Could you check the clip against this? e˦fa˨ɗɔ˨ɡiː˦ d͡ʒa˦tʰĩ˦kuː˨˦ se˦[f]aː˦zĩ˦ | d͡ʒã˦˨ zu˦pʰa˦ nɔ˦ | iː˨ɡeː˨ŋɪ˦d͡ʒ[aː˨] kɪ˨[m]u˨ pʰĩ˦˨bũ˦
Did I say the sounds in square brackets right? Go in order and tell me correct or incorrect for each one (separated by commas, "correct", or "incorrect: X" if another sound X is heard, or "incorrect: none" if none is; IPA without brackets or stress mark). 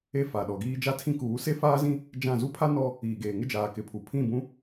correct, correct, incorrect: pʰ